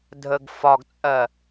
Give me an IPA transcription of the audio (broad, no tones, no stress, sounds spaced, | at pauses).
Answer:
dʱ ə ɡ f ɒ ɡ t͡sʼ ɜ